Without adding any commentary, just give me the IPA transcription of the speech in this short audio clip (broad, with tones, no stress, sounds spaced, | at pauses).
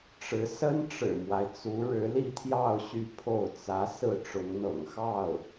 ʈ͡ʂ ɻ̩˧˥ s ə˥ n ʈ͡ʂ ɻ̩˨˩ m w a˦ ɪ̯ t͡s u˧˥ ɻ ɻ̩˧˥ l i˥˧ t̪ʰ j ɑ˥˧ ʊ̯ ɕ y˥˧ pʰ o˥˩ ʊ̯ t͡s ä˧˥ s ɹ̩˥˩ ʈ͡ʂ ʊ˧˥ ŋ n̪ ɤ̰˨˩ ŋ x ɑ˥˩ ʊ̯